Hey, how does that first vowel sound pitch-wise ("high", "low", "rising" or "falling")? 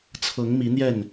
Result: rising